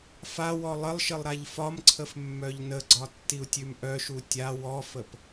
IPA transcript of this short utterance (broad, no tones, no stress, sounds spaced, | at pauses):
f a w ɔ lˠ ə lˠ ʃ ə lˠ ɾ a ʎ f ɒ m ǀʰ ə f mː œ ʎ n ə ɡ͡ǀ ɒ tː i u̯ tʲ ʉ m ʔ œ ʃ u tʲ a w ɔ f ə p